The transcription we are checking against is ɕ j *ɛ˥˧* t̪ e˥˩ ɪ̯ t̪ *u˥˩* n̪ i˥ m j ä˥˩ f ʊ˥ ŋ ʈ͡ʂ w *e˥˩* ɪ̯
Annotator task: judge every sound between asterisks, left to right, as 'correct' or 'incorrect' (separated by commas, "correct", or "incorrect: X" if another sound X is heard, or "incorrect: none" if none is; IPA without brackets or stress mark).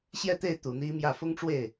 correct, incorrect: u˨˩, correct